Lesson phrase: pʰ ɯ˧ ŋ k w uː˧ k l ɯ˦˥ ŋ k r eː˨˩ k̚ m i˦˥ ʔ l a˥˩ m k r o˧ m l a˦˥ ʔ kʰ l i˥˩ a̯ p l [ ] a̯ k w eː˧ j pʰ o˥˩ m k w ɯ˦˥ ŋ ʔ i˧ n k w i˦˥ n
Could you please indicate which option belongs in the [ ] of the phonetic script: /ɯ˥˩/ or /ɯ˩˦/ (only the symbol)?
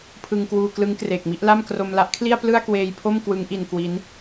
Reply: ɯ˥˩